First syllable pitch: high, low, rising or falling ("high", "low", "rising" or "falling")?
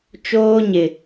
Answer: high